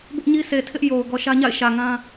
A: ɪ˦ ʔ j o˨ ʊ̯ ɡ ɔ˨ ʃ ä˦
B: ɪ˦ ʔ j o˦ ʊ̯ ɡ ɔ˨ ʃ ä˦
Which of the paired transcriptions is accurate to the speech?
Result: A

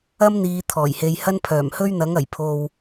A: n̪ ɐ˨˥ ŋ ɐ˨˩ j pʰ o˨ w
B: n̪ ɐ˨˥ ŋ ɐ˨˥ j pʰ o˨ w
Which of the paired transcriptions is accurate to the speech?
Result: A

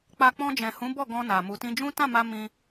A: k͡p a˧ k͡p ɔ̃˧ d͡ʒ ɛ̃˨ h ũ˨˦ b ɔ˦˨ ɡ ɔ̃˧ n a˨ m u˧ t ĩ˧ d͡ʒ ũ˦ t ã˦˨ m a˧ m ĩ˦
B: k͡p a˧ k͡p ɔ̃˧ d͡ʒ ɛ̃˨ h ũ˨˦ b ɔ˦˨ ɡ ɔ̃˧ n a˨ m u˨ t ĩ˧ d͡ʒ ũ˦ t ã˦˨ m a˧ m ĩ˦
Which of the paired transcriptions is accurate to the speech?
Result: B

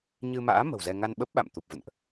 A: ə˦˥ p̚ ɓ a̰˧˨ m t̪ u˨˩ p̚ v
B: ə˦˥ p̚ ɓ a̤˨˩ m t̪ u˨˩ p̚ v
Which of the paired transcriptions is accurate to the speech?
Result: A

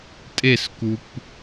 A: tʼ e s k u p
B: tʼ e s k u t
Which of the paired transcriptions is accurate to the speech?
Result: A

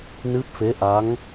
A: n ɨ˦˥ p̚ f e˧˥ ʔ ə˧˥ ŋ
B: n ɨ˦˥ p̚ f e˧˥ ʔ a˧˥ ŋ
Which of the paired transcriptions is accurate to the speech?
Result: B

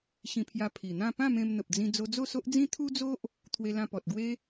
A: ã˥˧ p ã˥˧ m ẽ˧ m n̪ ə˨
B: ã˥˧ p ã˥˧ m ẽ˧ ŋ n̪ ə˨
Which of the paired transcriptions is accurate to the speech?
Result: A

